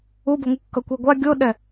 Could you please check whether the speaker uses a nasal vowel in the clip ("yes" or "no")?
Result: no